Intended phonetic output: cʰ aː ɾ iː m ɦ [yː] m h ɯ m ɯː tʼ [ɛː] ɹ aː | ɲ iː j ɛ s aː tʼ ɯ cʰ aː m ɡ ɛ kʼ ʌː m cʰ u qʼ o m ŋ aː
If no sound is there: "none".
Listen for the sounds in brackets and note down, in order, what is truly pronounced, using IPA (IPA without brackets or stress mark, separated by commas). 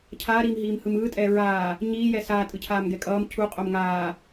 iː, ɛː